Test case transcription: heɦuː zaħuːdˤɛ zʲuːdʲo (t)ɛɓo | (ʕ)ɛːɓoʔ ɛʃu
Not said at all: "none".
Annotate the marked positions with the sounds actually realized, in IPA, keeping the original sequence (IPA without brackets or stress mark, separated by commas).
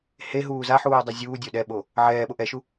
ɗ, ʕ